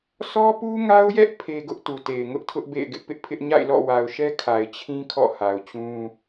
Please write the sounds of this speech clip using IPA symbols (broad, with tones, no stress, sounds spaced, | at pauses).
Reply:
sʰ ɔ˦ p u˦ ŋ a˦ ʊ̯ j ɛ˦ ʔ pʰ e˦ ɡ ʊ˦ ʔ t u˨ t e˨ ɪ̯ ŋ ʊ˦ ʔ tʰ ʊ˦ ʔ b ḛ˦˨ ɪ̯ ɡ ɪ˦ ʔ p ɪ˦ ʔ pʰ ɪ˦ ʔ ɲ a̰˦˨ ɪ̯ l ɔ̰˦˨ w a˨ ʊ̯ ʃ ɛ˦ kʰ a˨ ɪ̯ t͡ɕʰ ĩ˦ kʰ ɔ̰˦˨ h a˨ ʊ̯ t͡ɕ ũ˦